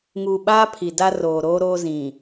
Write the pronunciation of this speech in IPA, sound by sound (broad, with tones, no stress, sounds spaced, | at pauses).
ŋ uː˨ ɓ aː˦ pʰ i˨ d a˦ r oː˨ ɾ oː˦ ɾ oː˦ z ĩ˨